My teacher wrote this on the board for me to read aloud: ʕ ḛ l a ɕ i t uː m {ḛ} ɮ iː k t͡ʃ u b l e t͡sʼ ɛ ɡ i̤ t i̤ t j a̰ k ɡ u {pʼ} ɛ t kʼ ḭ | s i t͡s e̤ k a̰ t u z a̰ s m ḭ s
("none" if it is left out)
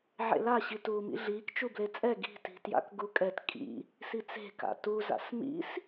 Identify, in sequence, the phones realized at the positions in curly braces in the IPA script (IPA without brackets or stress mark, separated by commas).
ḭ, kʼ